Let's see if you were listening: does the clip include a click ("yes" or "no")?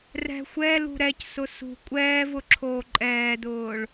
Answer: yes